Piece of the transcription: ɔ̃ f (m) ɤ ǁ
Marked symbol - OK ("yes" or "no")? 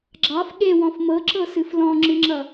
yes